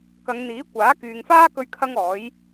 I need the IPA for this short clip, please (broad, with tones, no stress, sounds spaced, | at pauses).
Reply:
k ɐ˨˧ ŋ n̪ iː˨˥ kʷ aː˨˥ k yː˨ ŋ f aː˥ k ɵ˧ ɥ kʰ ɐ˥ ŋ ɔː˨˥ j